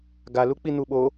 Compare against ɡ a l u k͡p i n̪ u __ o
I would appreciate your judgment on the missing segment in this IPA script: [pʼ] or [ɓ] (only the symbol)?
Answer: ɓ